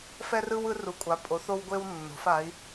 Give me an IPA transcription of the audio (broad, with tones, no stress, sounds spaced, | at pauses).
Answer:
f ɛ˧ r ɯ˧ w ɯ˩˧ r u˩˧ kʷʼ a˩˧ pʼ o˩˧ θ o˧ w ɡʷ e˧ w nː o̤˩˧ f a˩˧ i̯